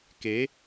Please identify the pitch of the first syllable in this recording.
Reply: rising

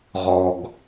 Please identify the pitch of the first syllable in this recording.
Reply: low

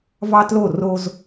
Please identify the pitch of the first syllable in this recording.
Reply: high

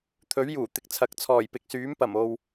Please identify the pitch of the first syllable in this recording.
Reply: rising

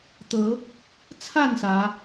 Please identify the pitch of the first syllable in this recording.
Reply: rising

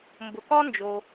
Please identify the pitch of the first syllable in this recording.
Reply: low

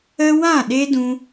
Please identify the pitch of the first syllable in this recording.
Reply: high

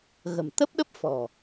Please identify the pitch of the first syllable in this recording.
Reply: low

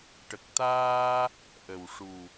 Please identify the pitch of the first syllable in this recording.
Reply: low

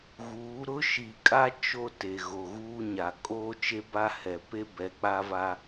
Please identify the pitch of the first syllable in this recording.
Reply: rising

